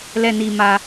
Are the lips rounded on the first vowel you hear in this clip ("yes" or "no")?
no